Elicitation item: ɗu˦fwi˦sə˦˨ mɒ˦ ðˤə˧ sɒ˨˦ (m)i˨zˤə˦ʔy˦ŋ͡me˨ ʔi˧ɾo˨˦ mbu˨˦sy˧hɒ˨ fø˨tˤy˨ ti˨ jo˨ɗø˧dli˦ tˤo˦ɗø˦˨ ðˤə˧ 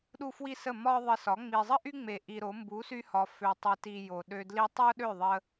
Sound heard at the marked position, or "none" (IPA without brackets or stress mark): ŋ͡m